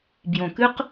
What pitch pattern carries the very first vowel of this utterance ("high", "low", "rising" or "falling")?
low